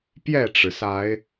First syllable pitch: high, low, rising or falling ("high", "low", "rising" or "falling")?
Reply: falling